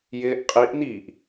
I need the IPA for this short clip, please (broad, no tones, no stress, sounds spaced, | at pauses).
j ɪː ʔ qʼ i ʔ n̪ iː ʔ